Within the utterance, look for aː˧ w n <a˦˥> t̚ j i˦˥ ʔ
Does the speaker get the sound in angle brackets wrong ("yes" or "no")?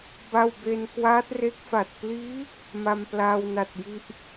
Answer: yes